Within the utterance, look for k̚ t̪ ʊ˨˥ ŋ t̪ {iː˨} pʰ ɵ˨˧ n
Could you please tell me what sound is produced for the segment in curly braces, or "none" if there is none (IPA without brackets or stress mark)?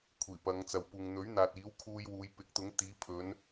iː˨˧